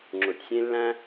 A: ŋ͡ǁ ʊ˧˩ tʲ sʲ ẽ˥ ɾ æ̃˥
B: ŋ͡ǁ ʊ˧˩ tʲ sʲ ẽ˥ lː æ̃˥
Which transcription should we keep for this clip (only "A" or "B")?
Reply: B